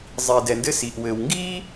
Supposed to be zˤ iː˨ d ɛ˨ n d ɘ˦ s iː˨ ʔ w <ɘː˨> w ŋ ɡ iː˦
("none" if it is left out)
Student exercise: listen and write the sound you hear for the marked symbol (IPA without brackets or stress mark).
ɘː˨